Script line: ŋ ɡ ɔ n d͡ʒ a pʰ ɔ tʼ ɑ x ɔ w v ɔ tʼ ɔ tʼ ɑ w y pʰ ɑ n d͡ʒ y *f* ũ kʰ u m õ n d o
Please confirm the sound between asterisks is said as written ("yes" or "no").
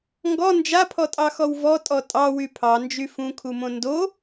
yes